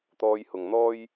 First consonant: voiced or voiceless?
voiceless